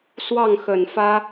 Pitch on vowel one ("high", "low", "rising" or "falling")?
falling